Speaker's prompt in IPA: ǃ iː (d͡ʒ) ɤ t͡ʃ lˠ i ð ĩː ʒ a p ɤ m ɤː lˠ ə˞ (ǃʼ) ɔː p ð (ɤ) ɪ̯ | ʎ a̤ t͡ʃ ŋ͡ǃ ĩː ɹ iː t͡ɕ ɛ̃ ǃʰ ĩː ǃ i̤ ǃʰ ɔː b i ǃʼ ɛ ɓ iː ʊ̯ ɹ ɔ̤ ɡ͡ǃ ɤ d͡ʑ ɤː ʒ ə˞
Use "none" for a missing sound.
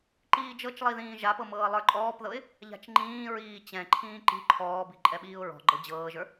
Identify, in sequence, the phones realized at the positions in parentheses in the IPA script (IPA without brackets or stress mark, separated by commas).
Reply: d͡ʒ, ǃʼ, ɤ